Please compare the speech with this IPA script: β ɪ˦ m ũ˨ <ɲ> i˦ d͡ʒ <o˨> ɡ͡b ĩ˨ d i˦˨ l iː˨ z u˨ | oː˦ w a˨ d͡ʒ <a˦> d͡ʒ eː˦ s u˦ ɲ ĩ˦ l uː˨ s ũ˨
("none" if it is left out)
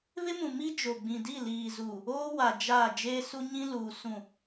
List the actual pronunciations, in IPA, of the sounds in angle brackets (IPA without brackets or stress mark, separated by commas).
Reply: m, o˨, a˦˨